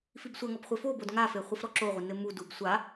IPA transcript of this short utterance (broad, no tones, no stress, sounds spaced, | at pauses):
f i b sʷ ɐ ŋ ɔ b χʷ ɘ f o b o d ŋ a f e χʷ ɘ f ɾ ɔ ǁ o ʁʷ ɛ n ɘ m u d u b sʷ a